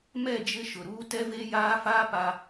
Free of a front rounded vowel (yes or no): yes